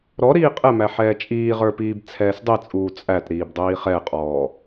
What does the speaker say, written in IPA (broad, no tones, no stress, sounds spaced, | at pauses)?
ɾ ɔ ɾ iː qʼ ɛ m æ ħ ɛː t͡ʃʼ iː ʁ ə˞ p iː b t͡sʰ ɛː s dˤ i t͡sʼ uː t͡sʼ æ t ɾ iː b dˤ iː χ ɛ qʼ ɔː